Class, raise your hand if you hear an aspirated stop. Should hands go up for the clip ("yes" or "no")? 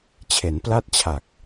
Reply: yes